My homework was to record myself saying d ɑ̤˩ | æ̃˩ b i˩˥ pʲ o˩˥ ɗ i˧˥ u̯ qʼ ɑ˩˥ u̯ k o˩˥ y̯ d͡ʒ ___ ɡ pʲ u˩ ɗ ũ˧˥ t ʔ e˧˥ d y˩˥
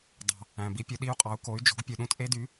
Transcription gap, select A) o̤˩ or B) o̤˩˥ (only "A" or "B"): B